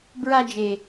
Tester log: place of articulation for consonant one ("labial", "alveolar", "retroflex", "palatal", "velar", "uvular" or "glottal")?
labial